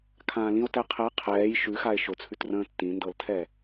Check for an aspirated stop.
present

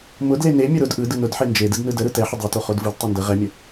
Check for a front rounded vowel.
absent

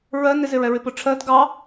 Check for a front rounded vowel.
absent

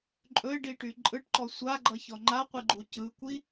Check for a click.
present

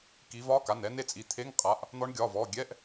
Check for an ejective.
present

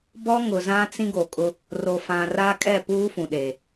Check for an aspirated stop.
absent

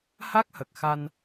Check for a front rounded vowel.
absent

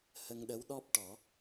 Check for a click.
absent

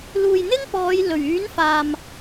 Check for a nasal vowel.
absent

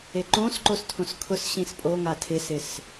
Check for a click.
present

